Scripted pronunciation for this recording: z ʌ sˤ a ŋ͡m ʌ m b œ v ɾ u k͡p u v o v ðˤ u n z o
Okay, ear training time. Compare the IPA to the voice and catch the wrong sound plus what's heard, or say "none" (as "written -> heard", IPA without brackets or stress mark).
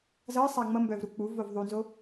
none